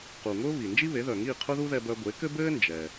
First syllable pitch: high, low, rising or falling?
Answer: low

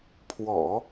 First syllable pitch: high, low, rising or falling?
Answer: low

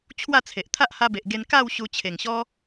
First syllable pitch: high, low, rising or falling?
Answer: falling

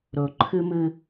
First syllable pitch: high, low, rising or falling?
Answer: low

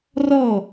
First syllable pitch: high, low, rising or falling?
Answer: falling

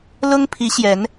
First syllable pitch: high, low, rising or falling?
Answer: high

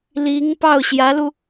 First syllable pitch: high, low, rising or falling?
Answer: rising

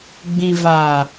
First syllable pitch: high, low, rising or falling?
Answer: low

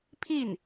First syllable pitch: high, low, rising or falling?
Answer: falling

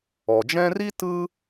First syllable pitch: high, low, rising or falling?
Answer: low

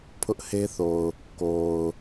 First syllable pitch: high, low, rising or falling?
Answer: high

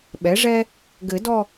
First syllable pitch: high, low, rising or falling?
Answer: rising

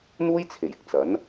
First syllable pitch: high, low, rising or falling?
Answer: high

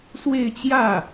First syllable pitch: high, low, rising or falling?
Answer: falling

